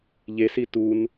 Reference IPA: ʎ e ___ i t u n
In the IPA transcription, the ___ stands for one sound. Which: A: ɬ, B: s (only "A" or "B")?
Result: B